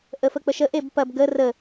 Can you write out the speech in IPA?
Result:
ʔəfək͡pəʃə ʔebpɐb ɡə rə

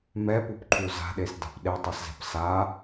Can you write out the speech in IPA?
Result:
mɛpup ǃʰuza̤ɗes da̤pɗetˤɛszɛ̤p sa

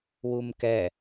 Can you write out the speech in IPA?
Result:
wumkɛ

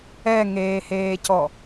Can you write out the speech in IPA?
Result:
ɛŋeːheːcɔ

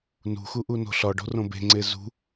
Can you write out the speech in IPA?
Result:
nṳxuʔuno̤ ɬɒɖo̤rõ be̤ŋ͡ǀe zṳ

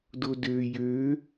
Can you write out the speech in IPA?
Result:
dodø jø

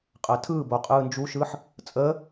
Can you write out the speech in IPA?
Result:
qʼəːtʰɯːbo qʼɯːnd͡ʒuʃɯːħ | t͡sʼəː

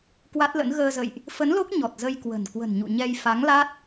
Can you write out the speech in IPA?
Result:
kwa˦˥t̚lə̰˧˥n ɣəː˧zə̰˧˨jʔ | fə˨˦nlo˦˥k̚ ɲɔ˨˩t̚zə˧jkwə̤˨˩n kwə̤˨˩nɲṵ˧˨ɲɛ˧j fa˨˦ŋla˦˥t̚

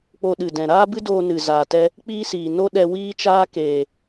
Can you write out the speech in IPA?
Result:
k͡po˧ɗɨ˨dɛ̃˨ ɾaː˦bɨ˦ doː˧nɨ˨zaː˨tɛ˧ | k͡piː˦siː˨ no˦ ɗɛ˧ wiː˦ t͡ʃaː˦keː˨

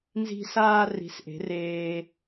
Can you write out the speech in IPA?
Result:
nzi̤˧saː˧ ri̤˩˧sʔe̤˩˧ reː˧

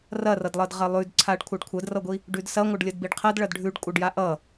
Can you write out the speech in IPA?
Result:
rɐrʌdlˠʌd ʁɐlˠʉdǀʰaɖ kʷʰaɖkʷʰɐdrʌɡʷi | ɖʉdsɐŋʷəɖ lʲʌdbiɖqʰɐd ɭɐdɖʱʉɖ kʷʼʌɖjaʔʌ

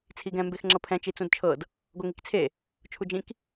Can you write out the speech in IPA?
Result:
t͡sʰiɡɛ̃ mbexŋ͡ǁɤpʰɛ̃ t͡ʃit͡sũdt͡ʃʰɤd | ɡoŋikt͡sʰe | t͡ʃʰud͡ʒĩk

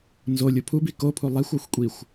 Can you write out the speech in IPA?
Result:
nzolʲo pʰubi kopʰu lˠexʷɒxʷkʷʼixʷ

